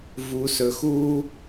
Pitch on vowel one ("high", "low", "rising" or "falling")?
low